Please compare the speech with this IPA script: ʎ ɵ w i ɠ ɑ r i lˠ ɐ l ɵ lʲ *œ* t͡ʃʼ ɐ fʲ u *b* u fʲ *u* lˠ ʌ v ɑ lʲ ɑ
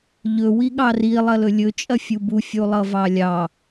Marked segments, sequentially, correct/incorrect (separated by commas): incorrect, correct, correct